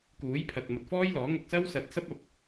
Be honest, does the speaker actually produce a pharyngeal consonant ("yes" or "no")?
no